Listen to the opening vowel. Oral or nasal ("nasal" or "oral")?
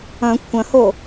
nasal